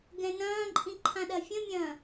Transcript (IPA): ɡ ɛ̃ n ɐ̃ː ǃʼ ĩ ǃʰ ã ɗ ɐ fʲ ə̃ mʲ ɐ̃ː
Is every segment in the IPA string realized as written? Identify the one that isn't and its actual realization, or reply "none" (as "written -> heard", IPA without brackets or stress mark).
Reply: none